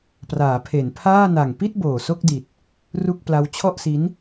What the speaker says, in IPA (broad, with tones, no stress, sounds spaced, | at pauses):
p r aː˩˦ pʰ e˩˦ n pʰ aː˥˩ n a˨˩ ŋ p i˥˩ t̚ b oː˨˩ s o˥˩ k̚ d i˨˩ t̚ | r u˥˩ k̚ p l a˦˥ w t͡ɕʰ ɔ˥˩ ʔ s i˦˥ n